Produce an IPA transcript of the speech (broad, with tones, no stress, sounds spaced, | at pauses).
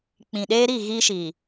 k͡p ĩ˨ ɗ eː˦ ɾ i˦˨ ɣ iː˦ ʃ i˨